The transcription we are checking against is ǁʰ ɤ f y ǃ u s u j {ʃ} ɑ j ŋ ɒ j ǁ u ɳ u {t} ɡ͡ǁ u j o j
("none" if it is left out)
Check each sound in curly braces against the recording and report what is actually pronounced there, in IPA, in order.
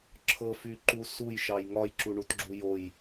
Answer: ʃ, t

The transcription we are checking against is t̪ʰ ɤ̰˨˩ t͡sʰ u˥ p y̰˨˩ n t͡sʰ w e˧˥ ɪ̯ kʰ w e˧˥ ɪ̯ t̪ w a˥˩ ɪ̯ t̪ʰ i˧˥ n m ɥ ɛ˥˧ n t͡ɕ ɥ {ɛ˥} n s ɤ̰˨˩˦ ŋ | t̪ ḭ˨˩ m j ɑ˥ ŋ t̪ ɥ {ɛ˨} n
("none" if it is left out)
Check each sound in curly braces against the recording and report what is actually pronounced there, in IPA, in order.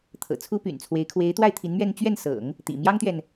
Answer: ɛ˥˩, ɛ˨

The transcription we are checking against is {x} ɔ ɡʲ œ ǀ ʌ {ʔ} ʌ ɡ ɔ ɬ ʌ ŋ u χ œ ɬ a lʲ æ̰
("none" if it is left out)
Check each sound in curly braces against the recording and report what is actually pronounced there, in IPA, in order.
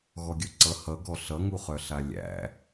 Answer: ɣ, h

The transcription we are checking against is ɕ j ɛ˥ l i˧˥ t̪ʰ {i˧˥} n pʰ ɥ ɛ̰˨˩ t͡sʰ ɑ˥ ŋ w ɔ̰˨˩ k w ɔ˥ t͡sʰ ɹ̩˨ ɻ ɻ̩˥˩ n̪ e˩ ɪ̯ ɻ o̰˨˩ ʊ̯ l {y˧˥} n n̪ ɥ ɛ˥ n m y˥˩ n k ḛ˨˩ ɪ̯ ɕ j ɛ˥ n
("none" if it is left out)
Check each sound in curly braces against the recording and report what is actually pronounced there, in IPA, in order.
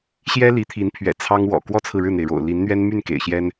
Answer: i˧˥, i˧˥

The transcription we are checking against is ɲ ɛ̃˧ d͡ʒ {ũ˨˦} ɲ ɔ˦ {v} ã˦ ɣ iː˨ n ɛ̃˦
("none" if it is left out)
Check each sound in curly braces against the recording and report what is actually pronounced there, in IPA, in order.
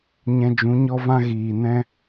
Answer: ũ˨˦, v

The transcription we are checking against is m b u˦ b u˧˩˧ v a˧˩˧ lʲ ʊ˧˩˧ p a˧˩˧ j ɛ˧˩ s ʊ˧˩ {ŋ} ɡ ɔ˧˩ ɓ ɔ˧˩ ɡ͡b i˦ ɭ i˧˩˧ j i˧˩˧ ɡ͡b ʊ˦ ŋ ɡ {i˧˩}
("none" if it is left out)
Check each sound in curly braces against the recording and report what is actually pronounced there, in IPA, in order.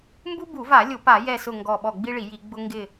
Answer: ŋ, ɪ˧˩

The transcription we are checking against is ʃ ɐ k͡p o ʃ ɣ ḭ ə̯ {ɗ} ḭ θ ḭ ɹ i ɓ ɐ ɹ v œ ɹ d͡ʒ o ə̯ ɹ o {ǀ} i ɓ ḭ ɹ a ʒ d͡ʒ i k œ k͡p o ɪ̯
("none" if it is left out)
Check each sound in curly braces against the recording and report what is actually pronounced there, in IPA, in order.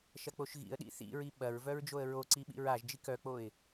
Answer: ɗ, ǀ

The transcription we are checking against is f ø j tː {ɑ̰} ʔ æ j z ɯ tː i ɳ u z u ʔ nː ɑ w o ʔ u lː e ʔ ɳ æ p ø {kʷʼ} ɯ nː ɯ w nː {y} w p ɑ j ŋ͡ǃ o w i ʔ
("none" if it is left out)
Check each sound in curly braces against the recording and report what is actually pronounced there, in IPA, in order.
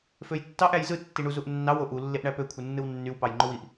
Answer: ɑ, kʷʰ, y

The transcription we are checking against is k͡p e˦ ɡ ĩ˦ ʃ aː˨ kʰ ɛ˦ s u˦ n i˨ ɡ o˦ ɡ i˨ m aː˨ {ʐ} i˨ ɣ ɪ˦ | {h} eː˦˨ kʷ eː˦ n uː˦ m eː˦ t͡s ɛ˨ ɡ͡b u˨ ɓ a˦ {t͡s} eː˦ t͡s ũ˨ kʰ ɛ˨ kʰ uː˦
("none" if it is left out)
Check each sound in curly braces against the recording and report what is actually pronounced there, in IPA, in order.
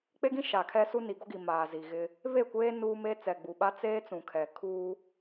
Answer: z, β, t͡s

